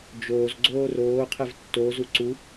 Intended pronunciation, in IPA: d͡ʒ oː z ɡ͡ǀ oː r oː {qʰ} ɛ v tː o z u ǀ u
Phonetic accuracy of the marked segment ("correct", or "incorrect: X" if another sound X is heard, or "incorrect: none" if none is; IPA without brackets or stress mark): correct